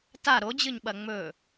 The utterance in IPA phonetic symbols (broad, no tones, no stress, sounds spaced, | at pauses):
t a ɾ o d͡ʑ ɨ ɲ ɓ ɐ ŋ͡m ɵ